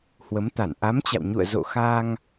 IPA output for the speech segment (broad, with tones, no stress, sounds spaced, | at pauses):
h w ə˨˦ m t̪ a˧˩ n ʔ a˨˦ m t͡ɕ a̰˧˨ w ɲ ṵ˧˨ ə̯ z o̰˧˨ x a˧ ŋ